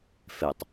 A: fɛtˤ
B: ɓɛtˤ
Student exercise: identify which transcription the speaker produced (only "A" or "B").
A